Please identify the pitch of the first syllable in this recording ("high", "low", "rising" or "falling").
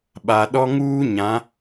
low